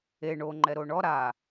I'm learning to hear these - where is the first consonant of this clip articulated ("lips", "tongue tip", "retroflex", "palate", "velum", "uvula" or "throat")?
retroflex